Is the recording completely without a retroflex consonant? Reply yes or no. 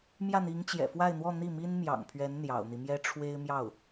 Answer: no